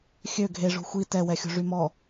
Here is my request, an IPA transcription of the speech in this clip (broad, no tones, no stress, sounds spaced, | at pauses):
xʲ ø ɡʱ e ʐ o̤ xʷ i t ɛ w ɛ xʲ o̤ ʐ y m ɔ